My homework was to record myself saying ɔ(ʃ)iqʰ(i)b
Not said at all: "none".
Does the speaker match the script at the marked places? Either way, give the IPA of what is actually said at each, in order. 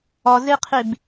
z, i

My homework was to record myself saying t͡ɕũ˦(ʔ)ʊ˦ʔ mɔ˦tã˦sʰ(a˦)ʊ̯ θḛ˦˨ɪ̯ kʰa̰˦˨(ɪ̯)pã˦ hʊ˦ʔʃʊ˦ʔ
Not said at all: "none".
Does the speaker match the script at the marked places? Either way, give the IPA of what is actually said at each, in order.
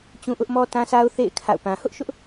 ʔ, a˦, ʊ̯

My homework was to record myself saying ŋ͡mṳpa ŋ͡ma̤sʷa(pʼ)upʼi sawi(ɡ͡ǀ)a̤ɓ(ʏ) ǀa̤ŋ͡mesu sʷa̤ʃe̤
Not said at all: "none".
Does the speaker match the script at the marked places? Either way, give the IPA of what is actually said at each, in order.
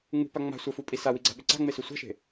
f, ɡ͡ǀ, ʏ

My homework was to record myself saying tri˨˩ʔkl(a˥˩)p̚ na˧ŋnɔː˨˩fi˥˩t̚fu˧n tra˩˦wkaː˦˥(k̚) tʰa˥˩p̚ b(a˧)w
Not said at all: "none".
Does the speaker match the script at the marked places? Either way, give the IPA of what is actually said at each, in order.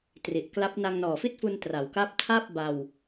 a˦˥, p̚, a˧

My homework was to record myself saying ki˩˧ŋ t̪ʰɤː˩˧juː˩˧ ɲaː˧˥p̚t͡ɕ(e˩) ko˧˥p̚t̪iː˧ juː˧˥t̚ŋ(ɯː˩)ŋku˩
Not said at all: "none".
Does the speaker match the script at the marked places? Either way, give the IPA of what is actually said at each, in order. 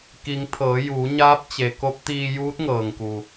e˩, ɤː˩

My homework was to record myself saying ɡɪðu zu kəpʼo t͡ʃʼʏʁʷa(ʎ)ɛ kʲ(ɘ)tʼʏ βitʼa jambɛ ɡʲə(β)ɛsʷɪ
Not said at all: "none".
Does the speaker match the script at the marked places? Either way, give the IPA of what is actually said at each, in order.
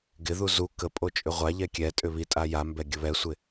ʎ, ɛ, β

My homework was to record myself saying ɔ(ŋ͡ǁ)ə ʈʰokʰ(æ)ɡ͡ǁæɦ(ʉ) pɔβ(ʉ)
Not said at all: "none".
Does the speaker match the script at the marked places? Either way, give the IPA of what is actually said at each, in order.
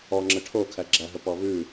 ŋ͡ǁ, æ, ə, ʉ

